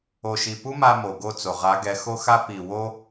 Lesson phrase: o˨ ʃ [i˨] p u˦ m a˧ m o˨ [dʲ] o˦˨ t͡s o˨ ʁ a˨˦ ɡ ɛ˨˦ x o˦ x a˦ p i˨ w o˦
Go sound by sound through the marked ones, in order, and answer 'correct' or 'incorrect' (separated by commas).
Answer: correct, incorrect